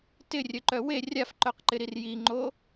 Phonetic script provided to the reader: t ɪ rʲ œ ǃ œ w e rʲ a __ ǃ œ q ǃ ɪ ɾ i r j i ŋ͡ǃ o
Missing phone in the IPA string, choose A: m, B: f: B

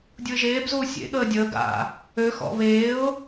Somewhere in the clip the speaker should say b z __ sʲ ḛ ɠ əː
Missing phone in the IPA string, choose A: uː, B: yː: A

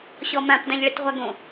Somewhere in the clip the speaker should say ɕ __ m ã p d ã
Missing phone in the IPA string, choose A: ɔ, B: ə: A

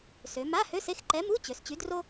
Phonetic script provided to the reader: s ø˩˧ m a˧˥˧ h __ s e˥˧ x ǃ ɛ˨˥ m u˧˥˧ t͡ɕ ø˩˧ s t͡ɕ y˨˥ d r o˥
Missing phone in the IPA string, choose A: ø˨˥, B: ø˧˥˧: B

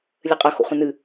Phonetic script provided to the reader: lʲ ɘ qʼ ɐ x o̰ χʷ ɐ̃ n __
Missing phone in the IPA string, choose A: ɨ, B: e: A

